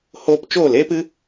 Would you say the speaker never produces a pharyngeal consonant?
yes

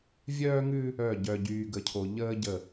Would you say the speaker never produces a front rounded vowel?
no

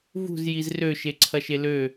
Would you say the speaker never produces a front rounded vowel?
no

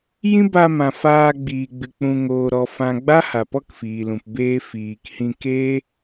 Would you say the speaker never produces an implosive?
yes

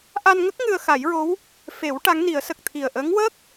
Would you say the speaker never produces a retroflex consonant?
no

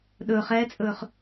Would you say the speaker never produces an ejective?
no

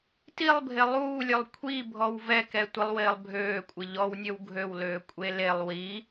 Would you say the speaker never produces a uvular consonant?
yes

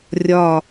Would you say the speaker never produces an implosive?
yes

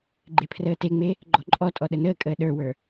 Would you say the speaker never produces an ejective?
no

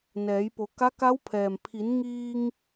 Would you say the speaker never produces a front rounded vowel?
yes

